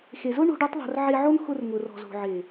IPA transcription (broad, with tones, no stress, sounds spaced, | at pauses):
x e˨ z ʊ˦ ɳ o̤˦ ɖ o˦ tˤ ðˤ o̤˧ r ʕ e˧ ʕ o˦ n x ʊ˧ r ŋ ʊ˨ r ɔ̤˨ z o̤˨ ʕ e˨